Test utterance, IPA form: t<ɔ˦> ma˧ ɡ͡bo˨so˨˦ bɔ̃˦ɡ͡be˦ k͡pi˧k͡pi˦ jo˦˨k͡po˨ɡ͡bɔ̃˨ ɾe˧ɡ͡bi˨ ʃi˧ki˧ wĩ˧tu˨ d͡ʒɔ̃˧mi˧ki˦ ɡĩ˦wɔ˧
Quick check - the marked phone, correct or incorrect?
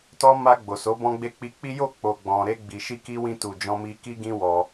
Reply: correct